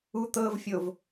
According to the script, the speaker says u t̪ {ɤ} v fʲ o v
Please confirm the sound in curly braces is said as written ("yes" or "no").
yes